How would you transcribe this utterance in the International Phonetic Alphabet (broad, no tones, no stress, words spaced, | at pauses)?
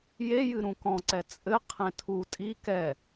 je jɨɾũkɔ̃ǀɛ t͡sʼɘ qʰẽtʰu tʼi kɛ